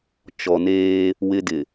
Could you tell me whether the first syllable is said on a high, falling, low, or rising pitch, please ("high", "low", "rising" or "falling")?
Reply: low